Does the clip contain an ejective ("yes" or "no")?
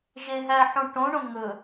no